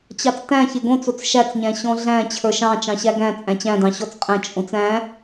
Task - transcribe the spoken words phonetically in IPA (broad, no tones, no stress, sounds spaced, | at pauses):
t͡ɕ ɑ t͡s t æ̃ ç e ɡ õ t͡s o t͡s ʃ æ t͡s ɲ æ̃ ɕ ɔ̃ ɮ æ̃ t͡ɕʰ ə˞ ʃ ɑ̃ t͡ʃ ɑ̃ ɕ æ ɡ æ̃ t͡sʼ æ̃ t͡ɕ æ̃ d ɑ̃ ɕ ɔ t͡s qʼ æ̃ t͡ʃʼ õ t͡s æ̃